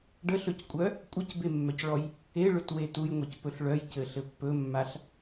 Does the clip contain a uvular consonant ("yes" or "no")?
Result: no